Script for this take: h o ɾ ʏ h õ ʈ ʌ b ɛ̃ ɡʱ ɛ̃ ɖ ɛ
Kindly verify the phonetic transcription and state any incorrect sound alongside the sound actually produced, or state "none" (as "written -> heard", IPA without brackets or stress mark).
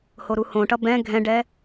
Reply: ʏ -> u